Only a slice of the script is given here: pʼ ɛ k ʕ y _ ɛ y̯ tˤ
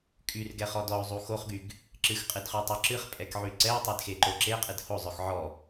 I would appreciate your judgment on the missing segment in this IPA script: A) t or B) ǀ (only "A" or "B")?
B